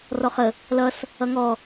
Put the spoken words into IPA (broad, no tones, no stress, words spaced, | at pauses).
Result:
rɔχə | lʌs | ʌŋɔ